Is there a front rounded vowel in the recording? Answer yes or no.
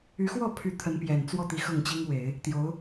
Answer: yes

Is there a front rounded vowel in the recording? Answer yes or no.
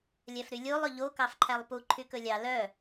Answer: yes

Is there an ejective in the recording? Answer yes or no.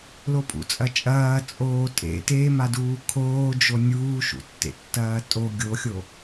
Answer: yes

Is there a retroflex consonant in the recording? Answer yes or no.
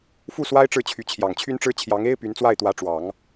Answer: yes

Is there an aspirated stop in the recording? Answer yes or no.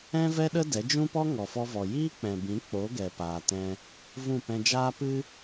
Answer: no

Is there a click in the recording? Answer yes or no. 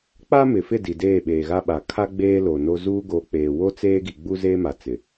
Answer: no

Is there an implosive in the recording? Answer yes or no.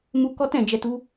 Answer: no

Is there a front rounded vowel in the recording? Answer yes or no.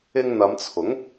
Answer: no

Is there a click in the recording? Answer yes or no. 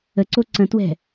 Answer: yes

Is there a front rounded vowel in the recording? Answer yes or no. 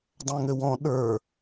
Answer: yes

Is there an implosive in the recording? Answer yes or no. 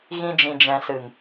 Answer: no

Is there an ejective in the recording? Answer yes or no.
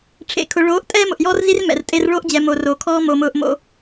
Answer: yes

